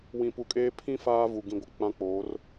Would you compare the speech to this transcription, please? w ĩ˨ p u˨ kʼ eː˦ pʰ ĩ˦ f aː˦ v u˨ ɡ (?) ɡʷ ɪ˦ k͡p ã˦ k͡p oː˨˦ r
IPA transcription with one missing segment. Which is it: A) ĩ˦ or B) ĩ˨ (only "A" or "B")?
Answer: A